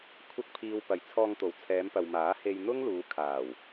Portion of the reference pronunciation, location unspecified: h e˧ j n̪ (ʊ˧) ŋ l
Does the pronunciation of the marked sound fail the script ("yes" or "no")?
yes